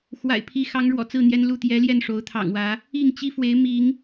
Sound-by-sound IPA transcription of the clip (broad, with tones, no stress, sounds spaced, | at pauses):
x w a̰˨˩ ɪ̯ pʰ i˨˦ x ɑ˨˦ ŋ ɻ w ɔ̰˨˩ t͡s ɹ̩˥˨ n̪ j ɛ˦ n l u˥˨ t̪ j ɛ˨˦ l j ɛ˥˨ n ʂ o˨˦ ʊ̯ t̪ʰ ɑ̰˨˩ ŋ w ä˨˦ | i˥˨ ŋ t͡ɕ i˦ f w e˨˦ ɪ̯ m i˨˦ ŋ